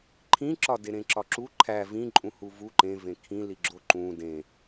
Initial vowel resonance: nasal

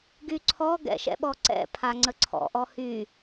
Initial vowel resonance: oral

